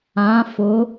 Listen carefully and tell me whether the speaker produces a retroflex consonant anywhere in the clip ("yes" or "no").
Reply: no